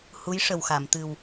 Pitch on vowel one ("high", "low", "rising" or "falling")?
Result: rising